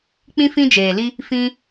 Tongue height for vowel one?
high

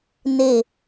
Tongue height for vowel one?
mid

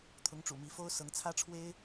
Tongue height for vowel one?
high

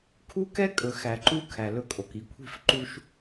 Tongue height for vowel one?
high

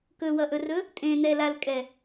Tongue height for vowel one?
mid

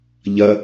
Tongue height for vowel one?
low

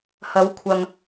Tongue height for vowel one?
low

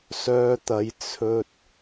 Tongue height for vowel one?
mid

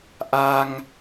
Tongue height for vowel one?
low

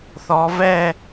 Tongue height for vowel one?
mid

